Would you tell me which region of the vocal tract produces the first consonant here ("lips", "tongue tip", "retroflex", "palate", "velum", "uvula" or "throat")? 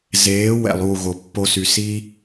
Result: tongue tip